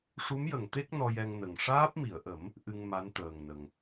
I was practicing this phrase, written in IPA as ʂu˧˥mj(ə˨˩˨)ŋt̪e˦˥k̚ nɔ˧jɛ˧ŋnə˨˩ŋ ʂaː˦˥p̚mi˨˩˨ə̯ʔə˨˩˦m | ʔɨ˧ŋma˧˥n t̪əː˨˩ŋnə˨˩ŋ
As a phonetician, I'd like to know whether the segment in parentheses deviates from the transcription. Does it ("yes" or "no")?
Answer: no